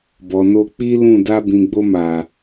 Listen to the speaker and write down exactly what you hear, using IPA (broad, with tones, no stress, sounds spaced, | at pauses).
b ɔ˨ n o˧ k͡p i˦ l ũ˦˨ d a˧ b ĩ˨ ɡ͡b o˧ m a˨